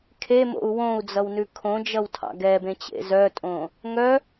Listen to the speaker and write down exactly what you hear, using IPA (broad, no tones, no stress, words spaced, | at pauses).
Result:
kʰemo̰u̯ wõu̯d͡zʌwnʉ kʰõd͡ʒʌwtʰɑ̰ ɡɛbẽt͡ɕḛ zœtʼõ | ŋœ